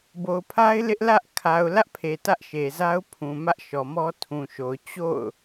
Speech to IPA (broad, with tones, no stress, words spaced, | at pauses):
bo˨ʊ̯pʰa˦ɪ̯ lɪ˦ʔlä˦ʔ kʰa˨ʊ̯lä˦ʔpʰe˨ tä˦ʔʃe˨za˦ʊ̯ pʰũ˨mä˦ʔʃɔ˨ mɔ˦tʰũ˨ʃo˨ʊ̯ t͡ɕo̰˦˨ʊ̯